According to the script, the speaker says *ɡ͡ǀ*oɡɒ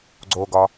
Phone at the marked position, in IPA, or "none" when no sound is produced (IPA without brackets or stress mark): ɡ͡ǀ